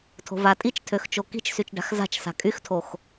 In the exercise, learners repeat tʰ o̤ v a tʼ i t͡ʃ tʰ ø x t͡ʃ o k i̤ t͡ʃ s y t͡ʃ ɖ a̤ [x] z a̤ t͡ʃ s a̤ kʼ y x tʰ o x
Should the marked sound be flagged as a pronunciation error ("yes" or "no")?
no